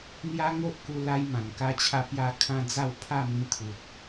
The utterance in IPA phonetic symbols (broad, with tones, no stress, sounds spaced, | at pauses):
n̪ j a˦ ŋ o˦ ʔ k u˧ l a˧ j m ã˨˩ n k a˧ t͡ɕʰ a˧ p j a˧ kʰ ã˧ d͡z a˥˧ w pʰ a˥˧ m ĩ˧ t̪ʰ u˨ t̚